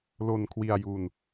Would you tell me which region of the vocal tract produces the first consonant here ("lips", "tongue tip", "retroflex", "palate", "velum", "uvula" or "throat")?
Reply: tongue tip